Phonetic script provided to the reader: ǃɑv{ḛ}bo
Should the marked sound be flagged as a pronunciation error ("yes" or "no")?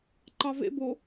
no